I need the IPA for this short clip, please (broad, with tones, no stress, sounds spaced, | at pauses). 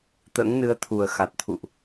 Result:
t̪ ə̰ː˧˥ ŋ n ɨ˨˦ ə̯ t̪ʰ u˨˩ ə̯ x a˨˩ t̚ t̪ʰ ṵ˧˨ ʔ